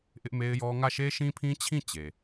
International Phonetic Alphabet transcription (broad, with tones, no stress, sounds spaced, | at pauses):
ʔ ɪ˦ ʔ m e˦ ɪ̯ j ɔ˦ ŋ ä˦˨ ʃ e˦ ʃ ĩ˦ pʰ ĩ˦ t͡ɕʰ ĩ˦˨ t͡ɕ e˨